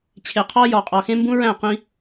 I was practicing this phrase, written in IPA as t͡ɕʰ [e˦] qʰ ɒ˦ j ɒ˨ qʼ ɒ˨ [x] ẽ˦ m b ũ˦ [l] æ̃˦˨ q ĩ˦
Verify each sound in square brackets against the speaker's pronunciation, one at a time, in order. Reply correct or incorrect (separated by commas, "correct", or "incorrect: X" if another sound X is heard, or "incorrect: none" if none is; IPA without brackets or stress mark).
incorrect: e˨, correct, incorrect: ɹ